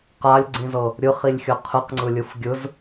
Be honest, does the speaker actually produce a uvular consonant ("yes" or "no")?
yes